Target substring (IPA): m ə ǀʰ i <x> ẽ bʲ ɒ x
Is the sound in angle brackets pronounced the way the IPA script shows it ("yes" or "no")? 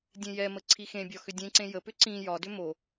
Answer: yes